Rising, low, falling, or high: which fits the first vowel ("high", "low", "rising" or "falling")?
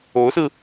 rising